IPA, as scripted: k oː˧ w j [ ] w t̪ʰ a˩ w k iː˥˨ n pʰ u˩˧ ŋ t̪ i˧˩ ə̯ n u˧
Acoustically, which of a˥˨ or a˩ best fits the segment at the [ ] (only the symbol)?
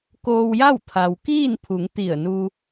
a˥˨